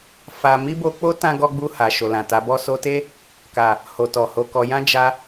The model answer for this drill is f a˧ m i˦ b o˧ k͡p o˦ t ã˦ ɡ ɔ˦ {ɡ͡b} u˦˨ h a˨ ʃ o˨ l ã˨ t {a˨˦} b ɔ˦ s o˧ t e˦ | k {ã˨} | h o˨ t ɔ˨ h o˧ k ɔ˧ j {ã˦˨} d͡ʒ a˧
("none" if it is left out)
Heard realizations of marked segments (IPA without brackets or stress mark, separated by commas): ɡ͡b, a˨˦, a˨, ã˦